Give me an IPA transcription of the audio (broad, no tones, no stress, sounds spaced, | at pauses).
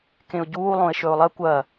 k ẽ ʊ̯ ɟ uː lˠ õ ɪ̯ ʃ ɵ ʊ̯ lˠ ɐ kʷ ɐ